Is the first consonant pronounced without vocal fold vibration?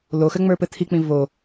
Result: no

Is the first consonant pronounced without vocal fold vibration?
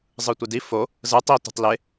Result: no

